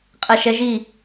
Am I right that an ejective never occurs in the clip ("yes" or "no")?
no